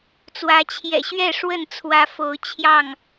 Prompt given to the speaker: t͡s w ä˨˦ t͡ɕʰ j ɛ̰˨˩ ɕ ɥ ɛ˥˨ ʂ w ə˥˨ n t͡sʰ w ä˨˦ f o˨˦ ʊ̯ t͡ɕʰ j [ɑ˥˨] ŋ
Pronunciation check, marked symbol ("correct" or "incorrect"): correct